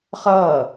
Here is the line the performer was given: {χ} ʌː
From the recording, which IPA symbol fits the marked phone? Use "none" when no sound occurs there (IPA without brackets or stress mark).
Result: χ